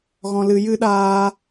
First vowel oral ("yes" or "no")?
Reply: no